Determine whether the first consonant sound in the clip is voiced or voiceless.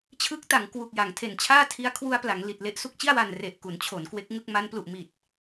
voiceless